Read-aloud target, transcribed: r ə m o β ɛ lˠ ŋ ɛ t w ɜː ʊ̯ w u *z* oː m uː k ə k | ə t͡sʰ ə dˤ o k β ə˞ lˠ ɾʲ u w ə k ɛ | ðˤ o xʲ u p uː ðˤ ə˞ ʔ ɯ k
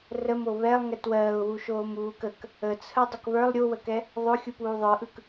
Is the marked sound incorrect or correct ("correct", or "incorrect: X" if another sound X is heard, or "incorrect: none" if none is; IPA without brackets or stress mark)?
incorrect: ʃ